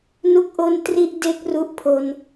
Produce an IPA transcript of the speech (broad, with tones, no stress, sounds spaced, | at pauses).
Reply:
n u˥˩ k̚ ʔ o˥˩ n t r i˥˩ ʔ d e˦˥ k̚ r u˦˥ ʔ pʰ o˧ n